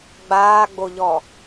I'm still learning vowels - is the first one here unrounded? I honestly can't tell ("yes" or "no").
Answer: yes